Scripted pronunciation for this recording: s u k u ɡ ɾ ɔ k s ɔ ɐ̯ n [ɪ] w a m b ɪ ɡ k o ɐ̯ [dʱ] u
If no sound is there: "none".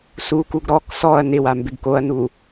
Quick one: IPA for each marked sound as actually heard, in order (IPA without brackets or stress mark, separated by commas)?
ɪ, n